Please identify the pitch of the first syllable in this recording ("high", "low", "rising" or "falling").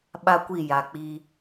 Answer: high